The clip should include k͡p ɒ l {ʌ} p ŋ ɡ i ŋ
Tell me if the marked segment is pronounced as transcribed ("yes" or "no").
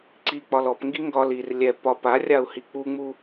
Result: no